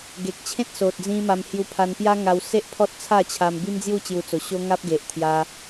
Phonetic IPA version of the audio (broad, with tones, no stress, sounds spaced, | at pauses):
ɡ e˨ k̚ t͡ɕʰ ẽ˦ t̚ s o˨ t̚ d͡z ĩ˧ m a˧ m h j u˧ pʰ a˧ n p j a˦ ŋ a˧ w s e˦ ʔ pʰ ɔ˦ t̚ t͡sʰ a˥˧ t͡ɕʰ a˧ m b i˦ m d͡z j u˥˧ t͡ɕ j u˧ t͡s o˨˩ ɕ o˦ ŋ a˦ p̚ ɡ e˨ ʔ t̪ʰ j a˧